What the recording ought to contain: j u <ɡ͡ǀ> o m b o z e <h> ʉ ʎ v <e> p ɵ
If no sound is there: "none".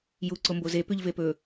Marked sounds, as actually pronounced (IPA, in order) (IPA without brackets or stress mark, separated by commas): ǀ, p, e